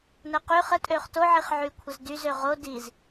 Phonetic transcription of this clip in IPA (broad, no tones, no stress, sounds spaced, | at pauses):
n ə q y χ ə tʼ ø χ t o ʕ i χ ʕ y kʷʰ ə z d y z ø ʁ o d i z